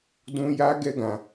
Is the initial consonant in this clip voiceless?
no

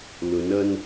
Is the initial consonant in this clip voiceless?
no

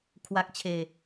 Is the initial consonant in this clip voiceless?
yes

